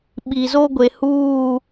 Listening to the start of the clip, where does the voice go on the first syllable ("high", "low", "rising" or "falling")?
low